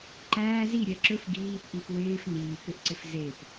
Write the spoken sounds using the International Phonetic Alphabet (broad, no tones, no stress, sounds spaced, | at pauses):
ǃ æː z i ɾʲ ɛ ǁ ɵ f ɡ iː p ʔ i p w ɪː f n iː k ʏ ʔ ǀ ɪ f z e p